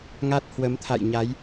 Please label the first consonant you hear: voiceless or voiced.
voiced